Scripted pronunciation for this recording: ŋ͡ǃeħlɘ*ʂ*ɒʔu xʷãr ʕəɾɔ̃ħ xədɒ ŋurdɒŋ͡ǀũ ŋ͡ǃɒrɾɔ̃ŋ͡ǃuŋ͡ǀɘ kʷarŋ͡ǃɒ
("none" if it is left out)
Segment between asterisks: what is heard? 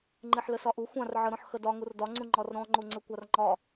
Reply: s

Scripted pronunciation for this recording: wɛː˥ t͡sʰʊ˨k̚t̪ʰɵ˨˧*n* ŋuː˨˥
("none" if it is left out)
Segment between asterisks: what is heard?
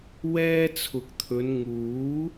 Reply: n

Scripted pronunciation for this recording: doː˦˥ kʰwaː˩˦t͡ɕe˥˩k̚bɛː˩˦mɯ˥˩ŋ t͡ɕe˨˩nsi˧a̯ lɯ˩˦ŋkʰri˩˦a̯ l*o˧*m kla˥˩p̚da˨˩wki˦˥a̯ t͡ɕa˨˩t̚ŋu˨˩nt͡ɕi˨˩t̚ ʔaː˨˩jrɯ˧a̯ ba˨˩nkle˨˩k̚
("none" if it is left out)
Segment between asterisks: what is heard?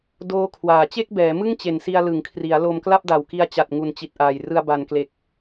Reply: o˧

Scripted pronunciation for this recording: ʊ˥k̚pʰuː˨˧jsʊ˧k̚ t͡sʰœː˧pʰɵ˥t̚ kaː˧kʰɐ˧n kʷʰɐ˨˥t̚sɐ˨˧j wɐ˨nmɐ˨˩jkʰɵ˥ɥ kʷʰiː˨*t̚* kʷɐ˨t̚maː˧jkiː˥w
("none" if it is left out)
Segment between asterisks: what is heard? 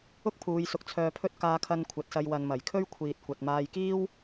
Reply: t̚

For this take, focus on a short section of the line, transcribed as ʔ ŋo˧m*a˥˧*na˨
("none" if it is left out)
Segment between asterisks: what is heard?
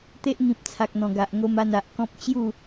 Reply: a˧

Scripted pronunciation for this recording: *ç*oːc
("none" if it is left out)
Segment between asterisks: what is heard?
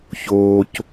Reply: ç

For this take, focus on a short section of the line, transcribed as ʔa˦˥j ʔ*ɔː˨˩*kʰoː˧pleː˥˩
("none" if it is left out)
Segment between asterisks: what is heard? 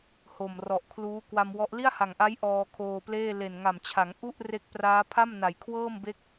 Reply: ɔː˧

